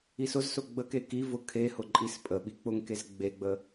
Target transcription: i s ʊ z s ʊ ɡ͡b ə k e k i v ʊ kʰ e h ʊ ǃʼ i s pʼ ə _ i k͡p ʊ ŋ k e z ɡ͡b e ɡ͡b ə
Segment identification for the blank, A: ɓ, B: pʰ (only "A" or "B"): A